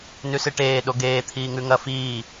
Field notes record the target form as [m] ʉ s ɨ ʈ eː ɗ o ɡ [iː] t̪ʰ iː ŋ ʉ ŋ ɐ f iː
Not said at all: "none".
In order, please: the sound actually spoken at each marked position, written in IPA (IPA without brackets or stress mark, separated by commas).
n, eː